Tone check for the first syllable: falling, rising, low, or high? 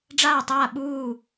falling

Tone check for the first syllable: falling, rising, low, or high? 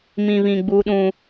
low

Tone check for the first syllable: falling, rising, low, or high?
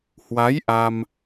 rising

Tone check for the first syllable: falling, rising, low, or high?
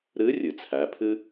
rising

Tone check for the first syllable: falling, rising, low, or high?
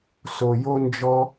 low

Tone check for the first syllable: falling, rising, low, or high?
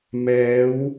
rising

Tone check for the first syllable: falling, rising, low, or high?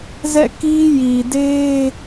falling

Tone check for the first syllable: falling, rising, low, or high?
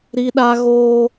high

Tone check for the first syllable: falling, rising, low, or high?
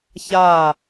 falling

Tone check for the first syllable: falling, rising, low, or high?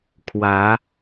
rising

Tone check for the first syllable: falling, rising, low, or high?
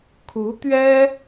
rising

